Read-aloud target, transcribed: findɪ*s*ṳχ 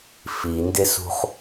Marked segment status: correct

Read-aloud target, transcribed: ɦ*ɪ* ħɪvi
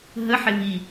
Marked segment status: incorrect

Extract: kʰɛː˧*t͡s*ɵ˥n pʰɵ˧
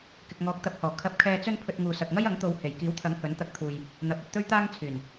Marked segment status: correct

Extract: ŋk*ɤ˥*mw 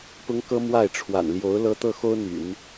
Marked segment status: correct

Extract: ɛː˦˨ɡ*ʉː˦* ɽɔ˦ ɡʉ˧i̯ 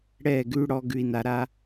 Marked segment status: correct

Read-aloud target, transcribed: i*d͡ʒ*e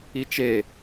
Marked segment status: incorrect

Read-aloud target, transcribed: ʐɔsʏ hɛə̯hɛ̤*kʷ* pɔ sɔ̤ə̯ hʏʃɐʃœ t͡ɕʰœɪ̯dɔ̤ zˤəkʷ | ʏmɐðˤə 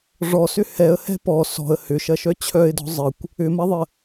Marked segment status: incorrect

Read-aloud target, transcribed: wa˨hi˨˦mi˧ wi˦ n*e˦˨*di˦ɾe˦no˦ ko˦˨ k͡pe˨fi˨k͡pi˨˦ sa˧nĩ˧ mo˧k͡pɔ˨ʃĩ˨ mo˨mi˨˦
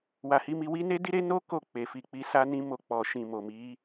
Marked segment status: incorrect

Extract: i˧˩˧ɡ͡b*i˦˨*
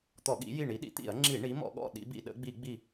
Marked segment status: correct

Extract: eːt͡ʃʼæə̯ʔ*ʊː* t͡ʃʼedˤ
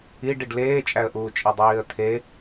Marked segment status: incorrect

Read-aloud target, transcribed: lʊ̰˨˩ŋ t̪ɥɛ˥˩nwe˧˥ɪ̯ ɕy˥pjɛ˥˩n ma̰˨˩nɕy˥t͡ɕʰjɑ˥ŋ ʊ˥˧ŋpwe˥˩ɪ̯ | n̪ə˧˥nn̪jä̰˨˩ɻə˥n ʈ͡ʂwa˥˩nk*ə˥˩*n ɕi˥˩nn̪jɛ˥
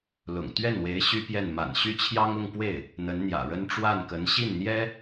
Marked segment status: incorrect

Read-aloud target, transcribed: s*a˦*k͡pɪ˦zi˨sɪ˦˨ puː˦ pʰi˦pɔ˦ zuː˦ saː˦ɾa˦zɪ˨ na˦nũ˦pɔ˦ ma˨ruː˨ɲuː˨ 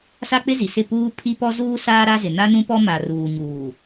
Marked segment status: correct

